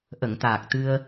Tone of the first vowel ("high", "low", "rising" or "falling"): low